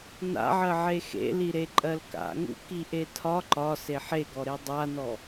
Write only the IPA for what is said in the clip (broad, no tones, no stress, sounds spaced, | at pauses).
n a̰ ʕ ɜ ʕ e x ḛ l i ɾ e ǃʼ ɜ l k a̰ ŋ ṵ k i ʔ e tʰ ɒ ǃ ɒ s e ħ e ɡ ɔ ɾ e dˤ a n ɔ